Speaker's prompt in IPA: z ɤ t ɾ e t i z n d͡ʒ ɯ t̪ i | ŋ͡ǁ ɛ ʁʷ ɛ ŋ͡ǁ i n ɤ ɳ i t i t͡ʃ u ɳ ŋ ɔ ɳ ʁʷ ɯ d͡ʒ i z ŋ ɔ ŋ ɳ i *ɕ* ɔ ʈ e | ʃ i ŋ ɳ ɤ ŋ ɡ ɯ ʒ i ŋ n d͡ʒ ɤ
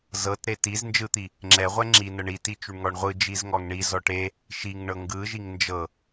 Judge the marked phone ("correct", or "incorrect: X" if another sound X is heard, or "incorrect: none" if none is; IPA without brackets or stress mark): incorrect: z